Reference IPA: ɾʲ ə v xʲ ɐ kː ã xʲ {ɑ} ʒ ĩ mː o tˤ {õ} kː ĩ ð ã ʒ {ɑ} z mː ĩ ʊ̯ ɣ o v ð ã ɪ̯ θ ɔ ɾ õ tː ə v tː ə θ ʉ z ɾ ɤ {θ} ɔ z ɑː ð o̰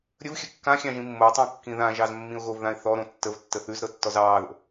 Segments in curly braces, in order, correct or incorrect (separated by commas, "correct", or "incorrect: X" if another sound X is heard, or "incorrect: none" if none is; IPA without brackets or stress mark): incorrect: ɑ̃, correct, correct, incorrect: tː